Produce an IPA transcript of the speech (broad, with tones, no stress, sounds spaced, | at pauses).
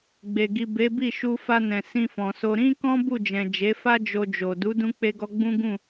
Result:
ɡ͡b e˨ ɡ i˨ b e˨˦ b i˦˨ ʃ u˧ f a˧ n ɛ̃˨ s ĩ˧ f ɔ̃˨ s o˧ ɾ ĩ˦ k ɔ̃˦ b u˦˨ d͡ʒ ɛ̃˨ d͡ʒ e˨˦ f a˦ d͡ʒ o˧ d͡ʒ o˨ d u˨˦ d ũ˧ k͡p e˧ ɡ ɔ˧ ɡ͡b ũ˦ ɡ ũ˦˨